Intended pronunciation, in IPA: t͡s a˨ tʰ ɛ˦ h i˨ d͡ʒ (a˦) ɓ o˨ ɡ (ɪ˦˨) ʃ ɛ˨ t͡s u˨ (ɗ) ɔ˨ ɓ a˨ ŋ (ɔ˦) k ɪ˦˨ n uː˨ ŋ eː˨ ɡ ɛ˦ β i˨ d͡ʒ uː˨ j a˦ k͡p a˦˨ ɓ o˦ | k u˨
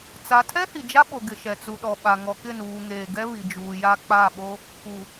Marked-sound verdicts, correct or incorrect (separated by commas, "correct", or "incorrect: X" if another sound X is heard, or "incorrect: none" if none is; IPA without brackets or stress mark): correct, incorrect: ɪ˨, correct, incorrect: ɔ˨